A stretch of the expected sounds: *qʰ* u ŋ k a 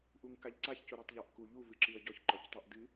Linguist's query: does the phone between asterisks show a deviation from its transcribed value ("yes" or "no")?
yes